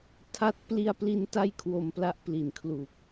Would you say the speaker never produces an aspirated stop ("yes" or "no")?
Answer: no